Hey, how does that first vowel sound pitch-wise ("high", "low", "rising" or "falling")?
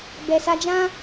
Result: low